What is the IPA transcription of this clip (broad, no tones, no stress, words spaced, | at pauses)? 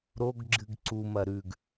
ɾoɡ ɡ͡ǁɨɡǀumɐ ɾʉɡ